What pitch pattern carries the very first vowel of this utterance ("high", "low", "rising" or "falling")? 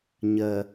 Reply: low